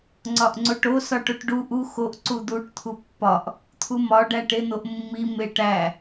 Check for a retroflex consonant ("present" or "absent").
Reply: present